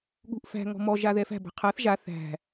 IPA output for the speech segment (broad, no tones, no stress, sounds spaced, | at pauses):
ɠ ṳ ʔ f æ̤ ŋ ɔ̤ m ɔ ʒ a ð ɛ f æ̤ b æ̤ qʰ a θ ʒ a θ æ̤